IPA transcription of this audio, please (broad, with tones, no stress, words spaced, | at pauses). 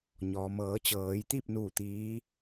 ɲɔː˩mɤː˩˧ t͡ɕɤː˩˧jt̪i˥˨p̚ nuː˥˨ t̪iː˧˥